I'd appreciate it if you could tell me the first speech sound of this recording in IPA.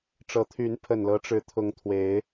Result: ʈ͡ʂ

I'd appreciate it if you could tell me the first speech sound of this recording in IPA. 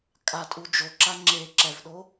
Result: kʼ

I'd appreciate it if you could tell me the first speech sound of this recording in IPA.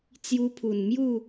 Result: t͡s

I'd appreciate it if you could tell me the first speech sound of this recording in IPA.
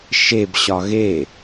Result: ʃ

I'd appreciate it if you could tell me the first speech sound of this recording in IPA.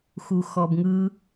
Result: x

